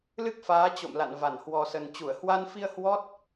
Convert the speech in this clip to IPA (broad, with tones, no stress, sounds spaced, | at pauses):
l ɨ˦˥ k̚ f aː˨˦ t͡ɕ o̰˧˨ m l a̰˧˨ n v a˧˩ n h w ɔ˨˩ s ə˨˩ n t͡ɕ u˧˩ ə̯ h w a˧ n f i˧ ə̯ h w ɔ˦˥ t̚